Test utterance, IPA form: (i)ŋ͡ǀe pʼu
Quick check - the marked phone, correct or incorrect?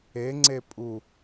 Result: incorrect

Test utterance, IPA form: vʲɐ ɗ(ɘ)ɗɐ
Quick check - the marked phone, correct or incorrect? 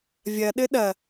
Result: correct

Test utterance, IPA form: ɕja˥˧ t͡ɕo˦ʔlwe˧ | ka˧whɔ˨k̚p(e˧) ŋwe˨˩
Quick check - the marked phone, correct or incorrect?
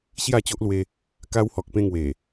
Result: incorrect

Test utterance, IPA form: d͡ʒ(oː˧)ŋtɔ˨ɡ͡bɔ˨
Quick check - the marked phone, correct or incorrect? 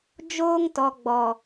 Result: correct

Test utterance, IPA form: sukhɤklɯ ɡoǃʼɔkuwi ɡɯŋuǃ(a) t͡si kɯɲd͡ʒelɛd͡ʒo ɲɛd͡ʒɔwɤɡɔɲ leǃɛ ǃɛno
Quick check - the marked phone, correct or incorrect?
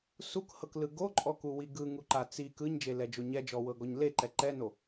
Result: correct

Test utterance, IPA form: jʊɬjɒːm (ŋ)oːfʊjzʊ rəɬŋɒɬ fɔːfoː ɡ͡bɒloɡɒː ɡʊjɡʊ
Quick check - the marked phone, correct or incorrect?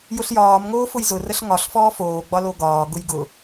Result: correct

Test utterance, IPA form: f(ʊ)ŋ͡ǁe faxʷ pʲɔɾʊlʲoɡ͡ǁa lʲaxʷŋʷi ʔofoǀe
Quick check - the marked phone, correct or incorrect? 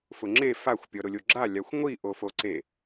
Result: correct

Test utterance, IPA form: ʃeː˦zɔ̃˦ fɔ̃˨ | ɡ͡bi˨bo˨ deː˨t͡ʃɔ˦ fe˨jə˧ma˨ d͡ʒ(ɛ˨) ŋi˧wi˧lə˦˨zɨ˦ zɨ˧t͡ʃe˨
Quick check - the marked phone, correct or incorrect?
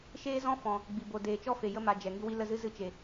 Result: correct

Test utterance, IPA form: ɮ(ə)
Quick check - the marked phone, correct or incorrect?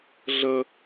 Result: correct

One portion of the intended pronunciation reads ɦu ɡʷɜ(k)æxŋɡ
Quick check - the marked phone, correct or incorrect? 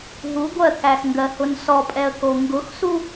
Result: correct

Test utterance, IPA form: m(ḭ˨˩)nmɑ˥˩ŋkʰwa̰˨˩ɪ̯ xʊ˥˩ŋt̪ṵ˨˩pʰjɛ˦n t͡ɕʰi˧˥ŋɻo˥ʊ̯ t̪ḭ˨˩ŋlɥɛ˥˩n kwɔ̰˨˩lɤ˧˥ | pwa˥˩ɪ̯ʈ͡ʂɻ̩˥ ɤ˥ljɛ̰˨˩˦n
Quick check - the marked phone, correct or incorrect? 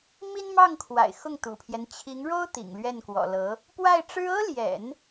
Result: incorrect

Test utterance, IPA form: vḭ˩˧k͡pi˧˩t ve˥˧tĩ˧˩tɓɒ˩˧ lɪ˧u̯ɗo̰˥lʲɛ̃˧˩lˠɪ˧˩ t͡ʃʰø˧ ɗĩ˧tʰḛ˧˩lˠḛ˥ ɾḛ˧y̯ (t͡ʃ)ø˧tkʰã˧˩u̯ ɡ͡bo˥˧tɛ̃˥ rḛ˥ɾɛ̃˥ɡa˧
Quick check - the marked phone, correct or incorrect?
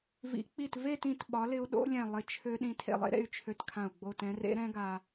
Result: incorrect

